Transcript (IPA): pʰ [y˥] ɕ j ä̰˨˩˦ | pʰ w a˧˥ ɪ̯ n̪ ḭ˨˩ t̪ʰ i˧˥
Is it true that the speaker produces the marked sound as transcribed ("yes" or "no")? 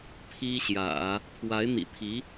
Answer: no